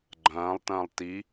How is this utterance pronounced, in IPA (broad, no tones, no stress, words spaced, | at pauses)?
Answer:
ɡ͡ǃɐ̃ːlˠtɐ̃ːlˠ ti